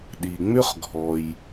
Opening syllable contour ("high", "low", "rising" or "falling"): low